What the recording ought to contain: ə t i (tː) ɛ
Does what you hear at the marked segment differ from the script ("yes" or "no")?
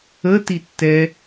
no